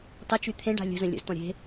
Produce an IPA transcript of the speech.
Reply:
tˤ ə t͡ʃ y t̪ʰ ẽ ɖ a̤ lʲ ə̤ z ə̃ lʲ ə̰ z t̪ ɔ̃ ɾʲ e̤

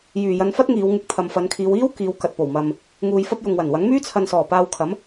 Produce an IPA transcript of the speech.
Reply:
j yː˨ j ɐ˧ n f ɐ˥ t̚ ŋ iː˨˧ w ŋ ɪ˧ k̚ t̪ʰ ɐ˨ m f ɐ˨˧ n kʰ iː˨˧ w iː˥ w k iː˨˧ w k ɐ˨ t̚ p o˨˩ w m ɐ˨ m | ŋ uː˧ j f ɐ˥ p̚ j ʊ˨ ŋ w ɐ˨˩ n w ɐ˨˥ ŋ m yː˥ t͡sʰ ɐ˨ n s ɔː˨˩ p aː˧ w kʰ ɐ˨˥ m

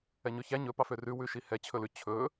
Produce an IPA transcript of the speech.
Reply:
ɛ ɲ ɵ ç æ ɲ ɵ p ɑ f ø r ʉ w ʉ ʃ i h ɛ t͡ɕʰ ɵ l ʉ t͡ɕʰ ɵ

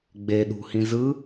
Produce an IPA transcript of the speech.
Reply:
ɡ͡b e ɗ ṳ h ĩ z ɯ

